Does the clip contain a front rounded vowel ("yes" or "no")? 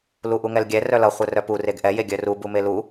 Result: yes